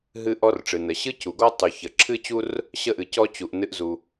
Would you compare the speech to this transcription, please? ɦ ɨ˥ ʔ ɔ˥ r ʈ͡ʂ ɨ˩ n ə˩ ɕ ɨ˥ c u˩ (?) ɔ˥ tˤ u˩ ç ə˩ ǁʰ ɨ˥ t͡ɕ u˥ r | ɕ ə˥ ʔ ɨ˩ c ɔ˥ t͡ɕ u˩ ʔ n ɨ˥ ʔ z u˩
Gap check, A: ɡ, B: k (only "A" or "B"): A